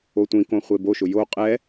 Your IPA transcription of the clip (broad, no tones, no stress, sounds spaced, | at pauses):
o tʷ ĩ k õ χʷ e b o ʃ ʊ j o qʼ ɛ